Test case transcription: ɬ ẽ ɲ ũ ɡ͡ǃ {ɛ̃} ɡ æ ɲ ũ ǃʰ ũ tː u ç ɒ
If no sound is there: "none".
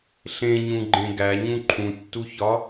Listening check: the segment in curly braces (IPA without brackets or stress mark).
ẽ